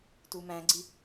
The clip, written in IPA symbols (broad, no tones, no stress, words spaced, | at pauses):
tumæ̃ɡ͡ǀi